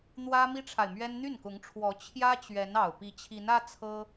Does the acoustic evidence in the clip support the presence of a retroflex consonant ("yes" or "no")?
yes